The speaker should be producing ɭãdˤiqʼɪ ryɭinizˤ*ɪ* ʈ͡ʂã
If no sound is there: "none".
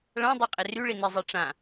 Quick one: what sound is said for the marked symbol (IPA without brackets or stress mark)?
i